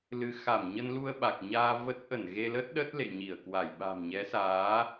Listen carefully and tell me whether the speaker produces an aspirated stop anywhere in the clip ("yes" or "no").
no